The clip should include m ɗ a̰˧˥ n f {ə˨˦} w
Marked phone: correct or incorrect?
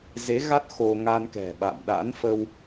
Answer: incorrect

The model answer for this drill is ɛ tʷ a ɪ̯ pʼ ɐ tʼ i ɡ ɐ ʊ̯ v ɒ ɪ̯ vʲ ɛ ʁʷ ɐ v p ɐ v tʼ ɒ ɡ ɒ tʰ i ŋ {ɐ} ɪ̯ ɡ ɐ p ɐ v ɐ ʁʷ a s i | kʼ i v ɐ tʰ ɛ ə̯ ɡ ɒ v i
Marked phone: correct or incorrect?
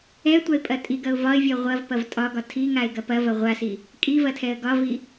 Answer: incorrect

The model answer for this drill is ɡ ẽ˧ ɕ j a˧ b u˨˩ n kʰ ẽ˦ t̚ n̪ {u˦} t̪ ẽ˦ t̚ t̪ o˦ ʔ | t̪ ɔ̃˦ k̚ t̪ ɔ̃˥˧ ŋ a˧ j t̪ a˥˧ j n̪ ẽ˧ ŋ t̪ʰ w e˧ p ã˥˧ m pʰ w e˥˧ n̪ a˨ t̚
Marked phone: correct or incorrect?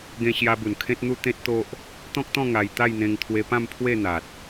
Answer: correct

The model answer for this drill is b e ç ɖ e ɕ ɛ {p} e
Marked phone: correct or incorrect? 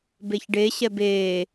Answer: incorrect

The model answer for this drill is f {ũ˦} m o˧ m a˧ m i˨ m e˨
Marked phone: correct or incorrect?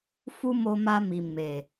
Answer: incorrect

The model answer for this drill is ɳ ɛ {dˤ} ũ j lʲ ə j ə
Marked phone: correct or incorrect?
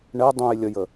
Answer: correct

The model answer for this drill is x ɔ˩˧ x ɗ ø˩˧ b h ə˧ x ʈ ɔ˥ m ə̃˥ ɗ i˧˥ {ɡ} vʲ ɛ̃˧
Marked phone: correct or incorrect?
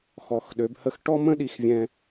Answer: incorrect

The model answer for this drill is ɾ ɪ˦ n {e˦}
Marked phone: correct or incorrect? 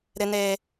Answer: correct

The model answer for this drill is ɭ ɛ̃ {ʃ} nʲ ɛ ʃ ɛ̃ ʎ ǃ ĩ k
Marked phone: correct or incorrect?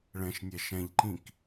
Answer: correct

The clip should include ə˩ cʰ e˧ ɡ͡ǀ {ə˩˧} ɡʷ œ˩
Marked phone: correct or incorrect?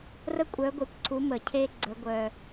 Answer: correct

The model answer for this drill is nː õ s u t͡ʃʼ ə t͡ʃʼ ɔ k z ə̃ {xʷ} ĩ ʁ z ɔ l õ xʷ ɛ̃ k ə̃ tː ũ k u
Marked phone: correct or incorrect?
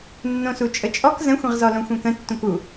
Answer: correct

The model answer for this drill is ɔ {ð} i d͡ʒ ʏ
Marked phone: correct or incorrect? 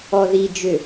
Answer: correct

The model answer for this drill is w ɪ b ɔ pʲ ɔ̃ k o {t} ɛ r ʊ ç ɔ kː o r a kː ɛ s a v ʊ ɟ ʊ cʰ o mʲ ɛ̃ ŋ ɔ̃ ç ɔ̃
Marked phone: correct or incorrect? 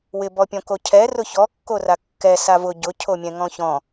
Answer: incorrect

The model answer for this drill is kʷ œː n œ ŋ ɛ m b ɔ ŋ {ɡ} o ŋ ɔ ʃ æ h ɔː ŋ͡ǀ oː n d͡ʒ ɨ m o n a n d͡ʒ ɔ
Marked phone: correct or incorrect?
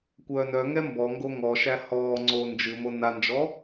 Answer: correct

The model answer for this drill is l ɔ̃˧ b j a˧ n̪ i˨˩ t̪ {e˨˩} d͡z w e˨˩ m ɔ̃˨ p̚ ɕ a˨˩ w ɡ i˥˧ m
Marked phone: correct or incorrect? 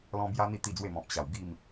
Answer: incorrect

